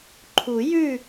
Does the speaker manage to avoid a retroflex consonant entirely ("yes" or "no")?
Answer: yes